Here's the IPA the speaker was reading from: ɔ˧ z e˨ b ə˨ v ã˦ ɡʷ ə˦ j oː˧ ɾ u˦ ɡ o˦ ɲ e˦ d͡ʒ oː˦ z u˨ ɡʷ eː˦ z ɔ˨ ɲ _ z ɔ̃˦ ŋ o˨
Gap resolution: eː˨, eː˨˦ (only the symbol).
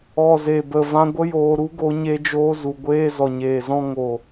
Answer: eː˨